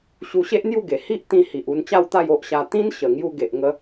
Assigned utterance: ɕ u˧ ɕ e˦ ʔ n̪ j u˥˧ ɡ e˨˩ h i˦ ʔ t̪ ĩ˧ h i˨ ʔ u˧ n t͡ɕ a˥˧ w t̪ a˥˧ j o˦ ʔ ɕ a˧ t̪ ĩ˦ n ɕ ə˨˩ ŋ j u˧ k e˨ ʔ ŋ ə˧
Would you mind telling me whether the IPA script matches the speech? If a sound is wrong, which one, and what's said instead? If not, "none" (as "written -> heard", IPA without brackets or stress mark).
k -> ɡ